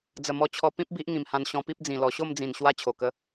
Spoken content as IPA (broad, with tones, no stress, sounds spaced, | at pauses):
d͡z ə˨˩ m ɔ˧ t͡ɕʰ ɔ˧ p ĩ˦ p̚ b i˦ ʔ ŋ ĩ˨˩ m h ã˧ n ɕ ɔ̃˧ p i˦ p̚ d͡z ĩ˨˩ l ɔ˨˩ ɕ o˥˧ m d͡z ĩ˨˩ n ɕ w a˧ t͡ɕʰ o˨˩ k ə˧